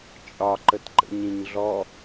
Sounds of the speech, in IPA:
t͡ʃʼ ɒ ǃ ə t ǃ ə̰ ɲ ĩ ɲ ɮ ɔ

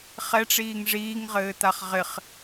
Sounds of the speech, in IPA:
χ ɛ ʈ͡ʂ iː ŋ ʐ iː ŋ ʁ ɘː t̪ a χ ʁ ɪ χ

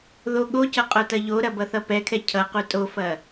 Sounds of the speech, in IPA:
ð o ɠ o c ʌ qʼ o t ɐ ʎ o ɾ ɐ b ʌ θ ʌ p ɛ kʰ ɛ cʰ ʌ q u tʼ o f ɐ

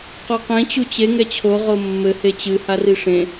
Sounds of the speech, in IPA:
q ɔ q ẽ t͡ɕ u t͡ɕ e ŋ ɛ t͡ɕʰ o ʁ o mː ɘ h e t͡ɕ ɨ h a r i ʂ ẽ

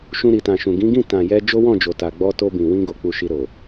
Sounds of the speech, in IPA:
ʃ ũ˧ ɾ i˨ t ã˨ ʃ ũ˨ ɡ ĩ˨˦ ɡ ĩ˦˨ t ã˨ j ɛ˧ d͡ʒ o˦ w ɔ̃˦˨ d͡ʒ o˨ t a˨ ɡ͡b ɔ˧ t o˧ b ĩ˨ w ĩ˧ ɡ o˧ k͡p u˧ ʃ i˧ ɾ o˨

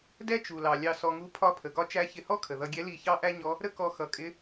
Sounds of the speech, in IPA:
d ɛ˥ t͡ʃ u˩ l ɑ˩ lʲ ɑ˧ s ɔ˧ ŋ u˧˥ pʰ ɒ˧˥ pʰ ə˩ ɡ ɒ˧˥ t͡ʃ æ˧˥ ç ɪ˧ h ɔ˥ kʰ ə˩ ð ʌ˧ ɡʲ ɛ˧˥ l i˧ ç ɑ˥ ʔ æ˥ ɲ ɔ˧˥ | ɾ ə˥ k ɔ˧ x ʌ˩˧ kʼ ɪ˧˥

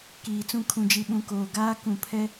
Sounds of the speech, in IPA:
k iː˨ t͡s ũ˦˨ kʰ ũ˨ d͡ʒ i˨ ɓ ũ˨ k oː˨ ɡ aː˦ k ũ˨ pʰ ɛ˦

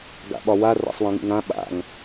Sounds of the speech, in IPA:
ɡ a̰ ɓ ɒ w a r a̰ sˤ w ã ŋ ḭ ŋ ã ɓ a̰ ŋ

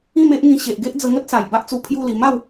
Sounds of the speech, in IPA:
ĩ˥˧ m e˦ ʔ ŋ ĩ˧ ɕ e˨ ʔ ɡ e˦ ʔ d͡z ə˧ ŋ ə˦ t̚ s a˨˩ j b a˦ ʔ t͡s u˧ pʰ j u˥˧ l i˧ m a˥˧ w

